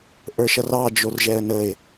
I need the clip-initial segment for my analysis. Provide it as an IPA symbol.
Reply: ʔ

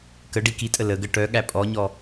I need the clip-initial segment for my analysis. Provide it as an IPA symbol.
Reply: k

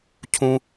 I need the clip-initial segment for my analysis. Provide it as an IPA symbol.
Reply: cʰ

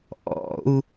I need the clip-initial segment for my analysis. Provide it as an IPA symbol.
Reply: ʔ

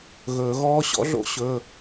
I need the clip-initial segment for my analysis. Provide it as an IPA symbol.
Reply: ɣ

